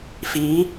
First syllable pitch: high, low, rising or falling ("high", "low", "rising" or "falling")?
rising